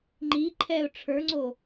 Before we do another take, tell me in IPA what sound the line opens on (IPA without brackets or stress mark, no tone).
ŋ͡ǃ